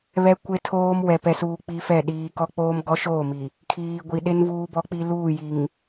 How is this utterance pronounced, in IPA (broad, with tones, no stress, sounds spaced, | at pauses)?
β ɛ˦ kʷ e˦ tʰ oː˦ m w ɛ˨ p ɛ˨ s uː˨ k͡p i˦ f ɛ˦˨ ɗ iː˨ k ɔ˦ k͡p oː˦ m ɡ ɔ˦ ʃ oː˦˨ m i˨ | kʰ iː˨ ɡʷ i˨ ɗ e˦ n v uː˦ b ɔ˦ k͡p i˦ l uː˦˨ j i˨ ŋ